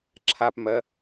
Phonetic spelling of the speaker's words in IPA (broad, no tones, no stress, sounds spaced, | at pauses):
ǁʰ a p m ɜ